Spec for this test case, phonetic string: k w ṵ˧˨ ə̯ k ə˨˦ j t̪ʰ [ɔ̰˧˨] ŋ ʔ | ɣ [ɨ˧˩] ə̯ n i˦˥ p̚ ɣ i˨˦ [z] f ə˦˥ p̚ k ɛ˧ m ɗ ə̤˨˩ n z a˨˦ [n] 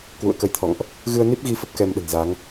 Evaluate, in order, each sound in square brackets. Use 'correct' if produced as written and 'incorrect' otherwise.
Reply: correct, incorrect, incorrect, incorrect

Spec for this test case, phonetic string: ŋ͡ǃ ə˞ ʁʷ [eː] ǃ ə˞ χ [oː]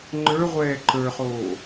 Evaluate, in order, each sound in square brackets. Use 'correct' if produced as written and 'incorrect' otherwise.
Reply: incorrect, correct

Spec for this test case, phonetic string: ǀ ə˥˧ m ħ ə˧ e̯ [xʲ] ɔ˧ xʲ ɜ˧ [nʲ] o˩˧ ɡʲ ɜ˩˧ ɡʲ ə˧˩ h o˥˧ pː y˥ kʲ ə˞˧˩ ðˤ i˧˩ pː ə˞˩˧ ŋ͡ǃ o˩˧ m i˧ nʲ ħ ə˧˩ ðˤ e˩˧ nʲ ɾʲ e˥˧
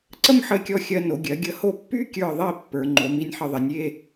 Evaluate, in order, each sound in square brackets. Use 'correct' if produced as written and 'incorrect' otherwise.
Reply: incorrect, incorrect

